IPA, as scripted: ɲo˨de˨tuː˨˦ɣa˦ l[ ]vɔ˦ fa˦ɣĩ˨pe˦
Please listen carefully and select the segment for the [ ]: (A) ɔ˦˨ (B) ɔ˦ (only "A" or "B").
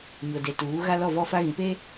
A